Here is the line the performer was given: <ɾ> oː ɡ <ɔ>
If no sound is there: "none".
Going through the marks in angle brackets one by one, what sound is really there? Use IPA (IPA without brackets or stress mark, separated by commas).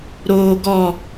ɾ, ɔ